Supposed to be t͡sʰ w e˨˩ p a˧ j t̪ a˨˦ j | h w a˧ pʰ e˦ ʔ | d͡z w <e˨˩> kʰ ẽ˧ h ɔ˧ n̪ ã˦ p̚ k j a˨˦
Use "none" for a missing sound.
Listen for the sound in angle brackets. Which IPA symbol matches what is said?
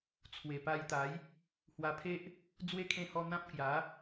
e˦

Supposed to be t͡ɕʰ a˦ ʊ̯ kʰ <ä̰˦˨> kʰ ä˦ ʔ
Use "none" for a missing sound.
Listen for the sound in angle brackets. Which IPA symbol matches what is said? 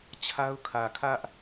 ä˨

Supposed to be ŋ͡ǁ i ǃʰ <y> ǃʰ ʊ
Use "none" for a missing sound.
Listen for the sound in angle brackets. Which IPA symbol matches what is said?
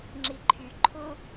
y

